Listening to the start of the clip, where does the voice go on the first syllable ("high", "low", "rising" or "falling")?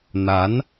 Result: rising